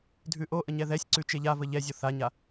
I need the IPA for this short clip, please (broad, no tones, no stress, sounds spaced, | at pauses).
dʱ ʉ ʔ o ʔ ə ɲ ɛ ð ɛ sʲ ǀ ʉ t͡ʃ e ʎ a v ə ʎ ɛ zʲ o θ a ɲ a